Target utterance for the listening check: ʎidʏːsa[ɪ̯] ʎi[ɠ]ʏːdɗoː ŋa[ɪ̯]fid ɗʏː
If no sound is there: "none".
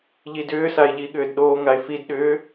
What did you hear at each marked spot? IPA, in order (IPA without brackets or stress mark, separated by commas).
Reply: ɪ̯, ɠ, ɪ̯